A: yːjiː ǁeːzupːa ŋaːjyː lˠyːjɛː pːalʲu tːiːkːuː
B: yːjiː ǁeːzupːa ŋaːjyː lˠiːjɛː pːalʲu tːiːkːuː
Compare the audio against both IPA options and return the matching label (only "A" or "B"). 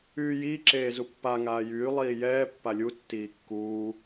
B